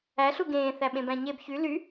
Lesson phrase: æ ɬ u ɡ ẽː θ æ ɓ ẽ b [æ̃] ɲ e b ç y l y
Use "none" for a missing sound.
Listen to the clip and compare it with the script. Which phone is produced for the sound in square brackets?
æ̃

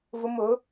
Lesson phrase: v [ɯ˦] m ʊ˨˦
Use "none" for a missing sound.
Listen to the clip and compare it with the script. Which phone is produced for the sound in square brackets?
ʊ˦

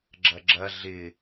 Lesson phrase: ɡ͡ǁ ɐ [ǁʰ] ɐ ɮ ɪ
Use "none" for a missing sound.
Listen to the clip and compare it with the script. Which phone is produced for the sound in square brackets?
ɡ͡ǁ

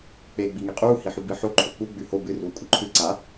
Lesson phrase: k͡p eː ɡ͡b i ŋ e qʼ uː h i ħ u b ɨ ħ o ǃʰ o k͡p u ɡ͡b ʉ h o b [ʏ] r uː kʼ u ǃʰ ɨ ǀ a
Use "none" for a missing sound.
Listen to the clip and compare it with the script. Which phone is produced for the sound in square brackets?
ɨ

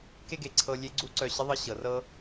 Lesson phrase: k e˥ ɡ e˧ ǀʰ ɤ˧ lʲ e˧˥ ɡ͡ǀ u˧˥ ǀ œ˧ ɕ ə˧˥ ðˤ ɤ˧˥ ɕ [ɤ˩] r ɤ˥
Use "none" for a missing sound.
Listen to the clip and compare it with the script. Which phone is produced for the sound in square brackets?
ɤ˩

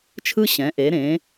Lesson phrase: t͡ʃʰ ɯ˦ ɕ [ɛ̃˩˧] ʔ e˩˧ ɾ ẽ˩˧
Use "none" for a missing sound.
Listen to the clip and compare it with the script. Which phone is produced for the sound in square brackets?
ɛ̃˩˧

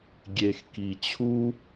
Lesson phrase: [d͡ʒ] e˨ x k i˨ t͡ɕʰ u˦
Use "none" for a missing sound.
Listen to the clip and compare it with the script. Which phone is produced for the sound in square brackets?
ɡʲ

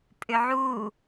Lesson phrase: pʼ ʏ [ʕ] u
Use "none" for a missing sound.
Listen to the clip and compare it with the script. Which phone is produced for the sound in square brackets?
ʕ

